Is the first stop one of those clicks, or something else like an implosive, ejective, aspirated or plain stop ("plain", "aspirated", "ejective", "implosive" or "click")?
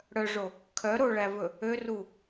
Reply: aspirated